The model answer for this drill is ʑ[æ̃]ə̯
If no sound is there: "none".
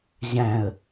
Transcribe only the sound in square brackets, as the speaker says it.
æ̃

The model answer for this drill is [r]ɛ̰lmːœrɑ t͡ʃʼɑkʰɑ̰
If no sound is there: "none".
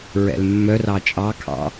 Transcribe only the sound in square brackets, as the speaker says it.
ɹ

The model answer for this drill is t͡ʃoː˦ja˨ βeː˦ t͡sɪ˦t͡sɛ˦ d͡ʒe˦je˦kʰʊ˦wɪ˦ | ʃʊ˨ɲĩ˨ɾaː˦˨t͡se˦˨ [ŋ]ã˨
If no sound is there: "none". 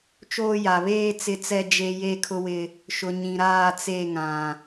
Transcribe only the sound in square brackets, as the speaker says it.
ŋ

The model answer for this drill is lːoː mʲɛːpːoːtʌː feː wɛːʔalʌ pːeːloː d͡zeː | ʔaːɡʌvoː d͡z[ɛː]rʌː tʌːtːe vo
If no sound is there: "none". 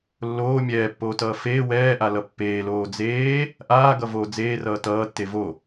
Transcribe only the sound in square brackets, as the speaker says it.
eː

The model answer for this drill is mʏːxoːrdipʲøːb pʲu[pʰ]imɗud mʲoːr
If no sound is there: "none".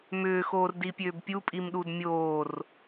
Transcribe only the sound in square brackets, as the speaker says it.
pʼ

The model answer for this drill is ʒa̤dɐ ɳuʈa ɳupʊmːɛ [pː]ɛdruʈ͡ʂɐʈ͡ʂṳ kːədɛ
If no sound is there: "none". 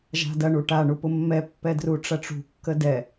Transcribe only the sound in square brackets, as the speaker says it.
pː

